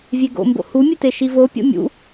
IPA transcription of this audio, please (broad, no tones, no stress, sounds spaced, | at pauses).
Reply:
vʲ e ɡ o̰ m b o̰ h u mʲ e t e ʃ i v o pʲ o̰ mʲ ṵ